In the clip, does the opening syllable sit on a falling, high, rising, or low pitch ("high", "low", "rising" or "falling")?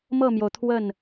falling